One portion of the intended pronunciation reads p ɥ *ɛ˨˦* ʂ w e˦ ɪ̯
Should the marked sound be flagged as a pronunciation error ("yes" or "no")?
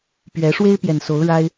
no